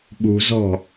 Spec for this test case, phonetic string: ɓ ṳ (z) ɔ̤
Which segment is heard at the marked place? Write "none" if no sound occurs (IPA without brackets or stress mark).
z